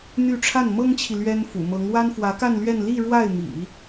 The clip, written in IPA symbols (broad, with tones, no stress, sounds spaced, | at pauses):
n̪ y˥˧ ʈ͡ʂʰ a˥˩ n m ɤ˥ ŋ t͡ɕʰ i˨ l ɥ ɛ˥ n f ṵ˨˩ m ɤ˧˥ ŋ w a˥ n f w ä˧˥ k a˥˧ n l ɥ ɛ˥˧ n l i˥˧ ɻ w a˥˩ ɪ̯ m ḭ˨˩˦